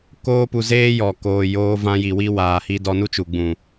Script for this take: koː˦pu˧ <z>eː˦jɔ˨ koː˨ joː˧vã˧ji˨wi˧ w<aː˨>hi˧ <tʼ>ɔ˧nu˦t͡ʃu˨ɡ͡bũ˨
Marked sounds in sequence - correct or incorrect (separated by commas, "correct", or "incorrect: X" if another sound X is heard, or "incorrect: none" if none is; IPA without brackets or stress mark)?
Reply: correct, correct, incorrect: d